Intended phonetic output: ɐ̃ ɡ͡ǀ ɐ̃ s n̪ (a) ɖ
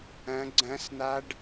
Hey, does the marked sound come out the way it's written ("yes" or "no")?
yes